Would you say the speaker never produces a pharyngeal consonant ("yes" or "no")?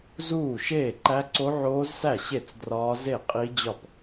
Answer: no